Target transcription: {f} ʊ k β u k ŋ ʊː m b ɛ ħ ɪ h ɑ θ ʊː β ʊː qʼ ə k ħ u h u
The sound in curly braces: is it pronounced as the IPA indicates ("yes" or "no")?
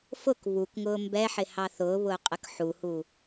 yes